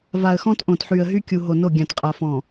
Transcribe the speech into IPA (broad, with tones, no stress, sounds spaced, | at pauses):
v a˨ ə̯ x ɔ̃˦ t ʔ õ˨ t ħ y˨ ə̯ ɦ y˦ kʲ u˨ ɦ o˨ n o˦˨ ɡʲ ã˨ t qʼ a˨ f ɔ̃˨